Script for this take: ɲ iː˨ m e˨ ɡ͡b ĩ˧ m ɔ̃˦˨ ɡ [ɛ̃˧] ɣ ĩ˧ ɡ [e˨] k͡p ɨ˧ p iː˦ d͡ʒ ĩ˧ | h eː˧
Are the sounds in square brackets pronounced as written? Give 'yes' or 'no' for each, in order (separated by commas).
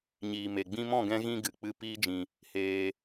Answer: yes, no